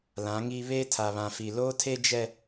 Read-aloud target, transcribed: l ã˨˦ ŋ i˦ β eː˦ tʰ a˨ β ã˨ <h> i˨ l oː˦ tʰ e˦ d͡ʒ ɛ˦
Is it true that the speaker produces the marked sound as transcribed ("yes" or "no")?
no